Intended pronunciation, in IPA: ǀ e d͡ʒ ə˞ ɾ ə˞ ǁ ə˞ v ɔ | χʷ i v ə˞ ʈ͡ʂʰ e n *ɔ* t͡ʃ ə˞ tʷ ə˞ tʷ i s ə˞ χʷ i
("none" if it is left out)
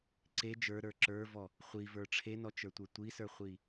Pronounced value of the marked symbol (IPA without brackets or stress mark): ɔ